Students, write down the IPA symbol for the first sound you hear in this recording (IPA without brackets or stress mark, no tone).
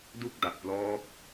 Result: d